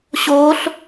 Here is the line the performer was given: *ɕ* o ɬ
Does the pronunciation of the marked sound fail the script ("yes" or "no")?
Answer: no